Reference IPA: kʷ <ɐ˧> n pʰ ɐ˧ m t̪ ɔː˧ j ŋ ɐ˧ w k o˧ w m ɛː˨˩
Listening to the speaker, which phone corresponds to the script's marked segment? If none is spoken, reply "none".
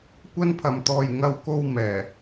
ɐ˥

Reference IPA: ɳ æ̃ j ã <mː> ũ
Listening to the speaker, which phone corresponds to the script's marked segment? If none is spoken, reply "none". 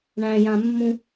mː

